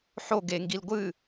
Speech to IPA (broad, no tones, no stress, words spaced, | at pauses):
ħo ɡeŋɡil ɡʷɨ